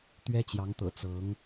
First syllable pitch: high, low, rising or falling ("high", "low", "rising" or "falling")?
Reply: high